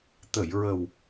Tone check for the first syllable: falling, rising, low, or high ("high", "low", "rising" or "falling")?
low